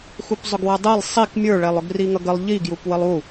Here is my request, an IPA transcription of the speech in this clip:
x u p zˤ ʊ ɡ w ʌ dˤ ɛ lˠ sˤ i k mʲ ə˞ ɭ ɛ lˠ ʊ ɡ r i ŋ ʌ ɡ ə lˠ ʎ i ɡ j u p w ə lˠ u

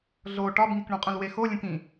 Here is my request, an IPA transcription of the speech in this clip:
ɮ o ʈ ɒ b ŋ i k ɳ ũ qʼ ũ l w e x o lʲ ũ k ĩ

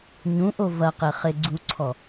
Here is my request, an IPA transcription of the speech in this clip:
ɲ ũ ʔ o v ɐ q e χ e ɡ͡ǀ u ǀʰ ɔ

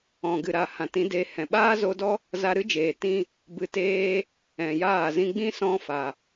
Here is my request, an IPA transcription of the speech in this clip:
ɔ̃˨ ɡ ɨ˨ ɾ a˨ h ã˨ t ĩ˨˦ d eː˧ h ɛ̃˨ ɓ aː˦ z o˧ d ɔ˦ | z a˧ ɾ ɨ˦ d͡ʒ eː˨ t ĩ˦ | b ɨ˧ t eː˧ | ɛ̃˨ j aː˦˨ z ĩ˧ ɡ͡b ĩ˦ s ɔ̃˦ f a˨

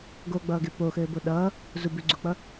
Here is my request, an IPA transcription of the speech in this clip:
ɡ o ɡ͡b ʌː ɡ e p o x ɘː b o ɗ ʌː | z u b ʉ ɡ͡ǀ u k͡p ʌ

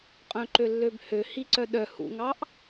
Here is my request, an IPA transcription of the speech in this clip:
qʼ œ̃ ǃ ø lː ø b h ø h i ǀ œ ɗ œ h ṵ ŋ ɑ ʔ

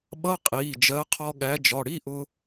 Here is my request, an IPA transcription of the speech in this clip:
ɓ ʌ˧˥˧ qʼ iː˩˧˩ d͡ʒ ɜ˨˥ qʰ ɔ˧ ɠ æ˨˥ d͡ʒ ɒ˩˧˩ ɽ i˧˥˧ ʔ ʊ˧

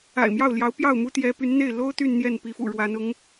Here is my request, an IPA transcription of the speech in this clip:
a̰˨˩ ɪ̯ m j ɑ˥˩ ʊ̯ l j ɑ˧˥ ʊ̯ p j ɑ˥˩ ʊ̯ m u˥ t̪ j ɛ˧˥ p y˧˥ n n̪ e˥˩ ɪ̯ l o˥ ʊ̯ t̪ y˥˧ n n̪ j ɛ˥˩ n p i˧˥ f ṵ˨˩ ɻ w a˧˥ n ʊ˧˥ ŋ

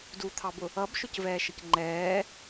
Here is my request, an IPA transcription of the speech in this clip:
d u t̪ʰ ɑ b ʊ | ʌ b ʃ ʊ c v ɛː ʃ ə c ŋ͡ǃ ɛː

